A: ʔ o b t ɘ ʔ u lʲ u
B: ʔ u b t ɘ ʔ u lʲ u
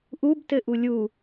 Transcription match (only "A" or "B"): B